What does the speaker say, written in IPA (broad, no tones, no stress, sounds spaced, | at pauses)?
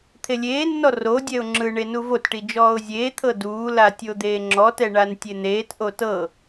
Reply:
t̪ʰ e lʲ eː nː ɔ r o dʲ ɛ ʊ̯ ŋ͡ǁ ɯ ɳ e n u v o t ʈ i d͡ʒ ɔː ʊ̯ zʲ eː t̪ʰ ɤ d uː l a tʲ o d̪ eː ŋ͡ǁ ɔ t ɛ ɳ a n tʲ e n̪ eː t ʔ o t ɤ